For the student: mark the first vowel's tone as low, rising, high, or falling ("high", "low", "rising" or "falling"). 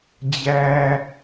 low